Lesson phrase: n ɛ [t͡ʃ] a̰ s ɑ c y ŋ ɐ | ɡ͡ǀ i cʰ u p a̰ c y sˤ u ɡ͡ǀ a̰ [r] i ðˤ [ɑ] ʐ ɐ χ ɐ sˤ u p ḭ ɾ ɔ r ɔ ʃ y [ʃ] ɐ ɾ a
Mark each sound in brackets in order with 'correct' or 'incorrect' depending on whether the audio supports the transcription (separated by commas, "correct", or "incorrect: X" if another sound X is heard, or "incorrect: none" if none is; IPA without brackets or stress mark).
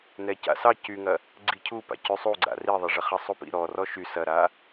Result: incorrect: c, correct, incorrect: ɐ, incorrect: s